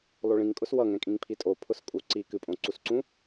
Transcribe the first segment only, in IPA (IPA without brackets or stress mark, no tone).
lˠ